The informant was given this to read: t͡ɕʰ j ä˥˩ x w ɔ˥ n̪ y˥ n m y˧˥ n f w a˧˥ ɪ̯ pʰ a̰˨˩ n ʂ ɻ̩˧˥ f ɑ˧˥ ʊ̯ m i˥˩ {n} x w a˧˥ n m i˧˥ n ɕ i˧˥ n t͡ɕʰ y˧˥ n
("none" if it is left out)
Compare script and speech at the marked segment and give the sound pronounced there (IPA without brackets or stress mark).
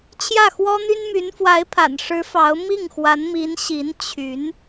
ŋ